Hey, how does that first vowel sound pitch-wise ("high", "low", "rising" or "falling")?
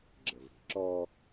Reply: low